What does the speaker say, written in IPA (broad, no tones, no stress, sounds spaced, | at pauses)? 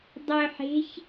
dˤ œ ħ e̤ ç